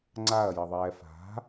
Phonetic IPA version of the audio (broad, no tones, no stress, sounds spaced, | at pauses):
ŋ͡ǀ a ɐ̯ j ʌ ðˤ ɛː f a̤